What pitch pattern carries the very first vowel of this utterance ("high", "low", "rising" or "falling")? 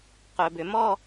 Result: low